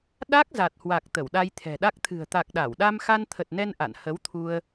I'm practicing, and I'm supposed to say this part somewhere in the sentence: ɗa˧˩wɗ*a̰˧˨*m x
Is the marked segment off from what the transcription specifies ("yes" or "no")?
yes